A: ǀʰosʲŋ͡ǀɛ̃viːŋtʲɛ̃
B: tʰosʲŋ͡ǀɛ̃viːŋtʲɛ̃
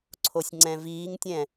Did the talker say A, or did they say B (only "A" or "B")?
A